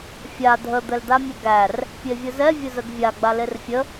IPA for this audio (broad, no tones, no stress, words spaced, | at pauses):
fʲa dʱə d̪ɛldamʲɛɡær | pʲevʲəzɛ vʲəzəɡvʲa ɡ͡balerfʲə